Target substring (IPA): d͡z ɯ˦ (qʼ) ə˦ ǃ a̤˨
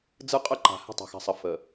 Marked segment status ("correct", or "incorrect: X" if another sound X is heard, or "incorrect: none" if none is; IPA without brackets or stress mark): correct